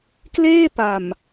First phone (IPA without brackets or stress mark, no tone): k